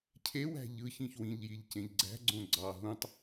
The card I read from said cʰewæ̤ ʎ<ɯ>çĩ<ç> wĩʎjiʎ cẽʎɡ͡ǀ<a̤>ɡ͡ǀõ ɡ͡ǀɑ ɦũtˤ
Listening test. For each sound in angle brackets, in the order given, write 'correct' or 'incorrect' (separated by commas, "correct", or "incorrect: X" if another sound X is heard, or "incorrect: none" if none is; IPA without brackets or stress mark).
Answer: correct, correct, incorrect: æ̤